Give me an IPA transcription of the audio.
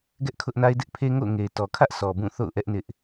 ɡɛ˦ʔkʰʊ˦ʔna˦ɪ̯ dɪ˦ʔ pʰe˦ŋo̰˦˨ʊ̯ ŋe˨ɪ̯tɔ˨kʰä˦ʔ sɔ˨bũ˦˨ θo̰˦˨ʊ̯ʔɛ˦ʔ nɪ˦ʔ

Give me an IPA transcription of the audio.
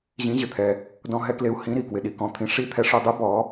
ʑĩ˧˥ʑɪ˧t̪ʰɛ˧ | dɔ̃˧ɦɛ˧kle˧u̯ hĩ˧˥ ɾi˧kwɪ˧ɗi˧kɔ̃˧˥ t̪ʰĩ˧ ʂi˧˥t̪ʰɛ˧ʂu˧dˤu˧˥ bɔ˧˥

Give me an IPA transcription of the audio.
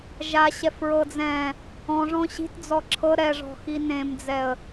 ʒaɕɛf ɹɤd͡zɛ̃ | ɔ̃ʐɔ̃ ɕi̤td͡zɔ ǁʰɤ ɾɛʐɔ̤xi nẽmd͡zɛə̯

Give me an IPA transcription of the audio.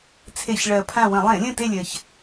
t͡sʰe˧˩˧çɭɜ˨˩ pʰã˦˨wə̃˧˩˧ lˠẽ˧˩˧lʲə̃˦˨ te˦˨lʲɜ˨˩ç

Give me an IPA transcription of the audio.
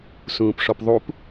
sũːpʂɔpðˤup

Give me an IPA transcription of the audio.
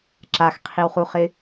ǁaxqʰiwχuχɪ

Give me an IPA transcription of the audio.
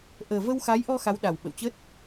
ʔəː˨˩və˧w xa˨˦jʔɔ˧ xa˨˦wɗa˨˩wɓə̰˧˨wt͡ɕə˦˥t̚

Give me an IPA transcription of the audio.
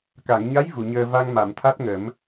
ka˨˩˨ŋɲa˧˥j vu˨˩˨ɲəː˧ va˧ŋma˨˩˨mt̪ʰa˦˥t̚ŋə˨˩˦m

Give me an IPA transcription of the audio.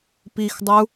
pixdˤəu̯

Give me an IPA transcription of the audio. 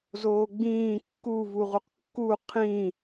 zoːɡ͡bĩː kːuvuʁuq kːu qʰĩ

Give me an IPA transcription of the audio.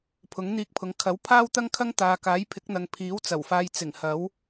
pʰʊ˨˥ŋn̪iː˧k̚pʰʊ˨˧ŋ kʰɐ˨˥w pʰaː˥wt̪ɐ˥ŋkʰɐ˥ŋ t̪aː˨ kaː˨˥jpʰɪ˨˥k̚n̪ɐ˨ŋ pʰiː˨˥wt͡sɐ˨˩wfaː˧jt͡sɪ˨˩ŋ hɐ˨˥w

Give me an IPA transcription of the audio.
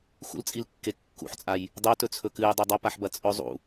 xṵlt͡sʼilkːe kːṵħt͡sʼaj | dˤotɵt͡sʰɵ kɨjdˤe dˤɐpaħbɐ t͡sʼɵ zˤṵ

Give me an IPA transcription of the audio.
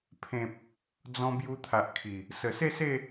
pʰẽ˨p̚ | d͡zɔ̃˧ bju˧t̪ʰa˨ʔkʰi˨˩ | sə˨˩se˥˧se˥˧

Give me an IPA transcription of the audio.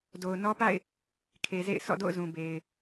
do˨ʊ̯nɔ˦pa̰˦˨ɪ̯ | kʰe˨zḛ˦˨ɪ̯sʰɔ̰˦˨do̰˦˨ʊ̯ zũ˨be˨ɪ̯

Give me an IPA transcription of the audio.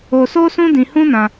o˧so˦ sũ˦dĩ˧hũ˦nã˧

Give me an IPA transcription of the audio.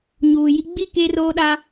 ɲuː˨ji˦ ɡ͡bi˦˨ keː˦roː˦ɗa˦

